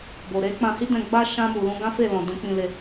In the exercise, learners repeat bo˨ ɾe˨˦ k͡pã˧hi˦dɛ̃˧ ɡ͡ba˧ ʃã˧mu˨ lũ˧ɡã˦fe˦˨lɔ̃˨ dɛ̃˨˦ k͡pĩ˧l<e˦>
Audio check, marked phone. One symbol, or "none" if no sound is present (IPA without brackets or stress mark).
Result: e˧